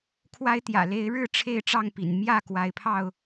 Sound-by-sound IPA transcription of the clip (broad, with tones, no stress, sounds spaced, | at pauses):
kʰ w a˦ ɪ̯ t̪ j ä̰˨˩ l e˨˦ ɪ̯ ɻ ɻ̩˥˨ ʈ͡ʂʰ e˥˨ ɪ̯ ʈ͡ʂ ɑ˥˨ ŋ p ḭ˨˩ n m j ä˥˨ k w a˨˦ ɪ̯ pʰ ɑ˥˨ ʊ̯